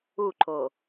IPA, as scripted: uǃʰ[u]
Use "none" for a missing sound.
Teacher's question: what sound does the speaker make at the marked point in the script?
o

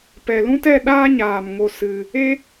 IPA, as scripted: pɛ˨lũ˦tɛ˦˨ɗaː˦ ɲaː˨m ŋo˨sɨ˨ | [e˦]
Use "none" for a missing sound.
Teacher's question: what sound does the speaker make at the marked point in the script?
e˦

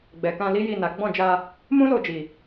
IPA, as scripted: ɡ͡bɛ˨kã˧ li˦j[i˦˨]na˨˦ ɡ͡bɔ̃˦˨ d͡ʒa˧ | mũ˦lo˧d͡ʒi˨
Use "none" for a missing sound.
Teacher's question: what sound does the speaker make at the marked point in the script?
i˦˨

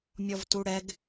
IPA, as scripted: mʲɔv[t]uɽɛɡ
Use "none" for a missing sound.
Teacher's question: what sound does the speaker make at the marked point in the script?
t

